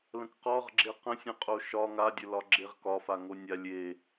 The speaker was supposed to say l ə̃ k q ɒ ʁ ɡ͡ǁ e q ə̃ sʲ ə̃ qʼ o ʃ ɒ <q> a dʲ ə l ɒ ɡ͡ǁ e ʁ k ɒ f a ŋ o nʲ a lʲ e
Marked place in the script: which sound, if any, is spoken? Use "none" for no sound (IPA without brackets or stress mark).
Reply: ŋ